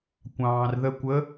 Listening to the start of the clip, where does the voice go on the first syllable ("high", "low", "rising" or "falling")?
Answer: low